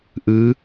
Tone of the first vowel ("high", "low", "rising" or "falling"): rising